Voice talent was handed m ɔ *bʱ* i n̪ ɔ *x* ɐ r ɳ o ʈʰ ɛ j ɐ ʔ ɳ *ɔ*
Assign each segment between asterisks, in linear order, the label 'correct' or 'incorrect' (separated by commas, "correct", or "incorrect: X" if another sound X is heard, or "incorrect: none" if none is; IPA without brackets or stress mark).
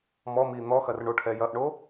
incorrect: m, correct, incorrect: o